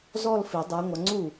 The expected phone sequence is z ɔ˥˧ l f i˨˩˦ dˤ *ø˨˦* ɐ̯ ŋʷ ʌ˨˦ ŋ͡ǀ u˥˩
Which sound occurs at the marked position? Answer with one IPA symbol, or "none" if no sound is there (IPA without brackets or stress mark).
u˨˦